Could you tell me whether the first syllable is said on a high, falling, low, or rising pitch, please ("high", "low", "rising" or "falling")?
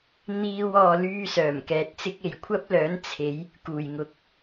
high